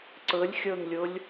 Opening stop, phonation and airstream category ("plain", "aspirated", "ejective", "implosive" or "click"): click